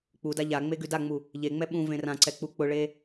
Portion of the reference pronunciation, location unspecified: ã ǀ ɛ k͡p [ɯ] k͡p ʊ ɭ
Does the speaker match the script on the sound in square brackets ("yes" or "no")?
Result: no